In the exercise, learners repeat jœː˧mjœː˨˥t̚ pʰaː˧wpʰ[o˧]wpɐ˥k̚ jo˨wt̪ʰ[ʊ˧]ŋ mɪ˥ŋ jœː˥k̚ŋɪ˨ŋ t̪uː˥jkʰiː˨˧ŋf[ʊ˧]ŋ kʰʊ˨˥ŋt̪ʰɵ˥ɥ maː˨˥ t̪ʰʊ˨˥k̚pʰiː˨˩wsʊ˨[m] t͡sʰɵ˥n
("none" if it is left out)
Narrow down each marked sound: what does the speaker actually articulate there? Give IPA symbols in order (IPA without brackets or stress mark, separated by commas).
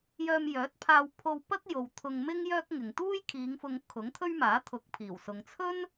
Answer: o˧, ʊ˧, ʊ˧, ŋ